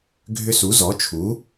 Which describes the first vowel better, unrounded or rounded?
rounded